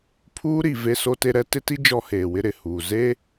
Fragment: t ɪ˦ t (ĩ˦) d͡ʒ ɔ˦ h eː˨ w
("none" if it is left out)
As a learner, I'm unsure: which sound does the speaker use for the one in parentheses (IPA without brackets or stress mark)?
i˦